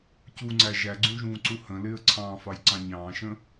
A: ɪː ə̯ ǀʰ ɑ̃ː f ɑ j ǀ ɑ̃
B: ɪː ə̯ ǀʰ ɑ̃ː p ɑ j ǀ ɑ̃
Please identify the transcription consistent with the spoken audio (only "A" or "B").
A